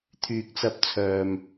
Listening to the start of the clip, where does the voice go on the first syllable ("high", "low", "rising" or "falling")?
low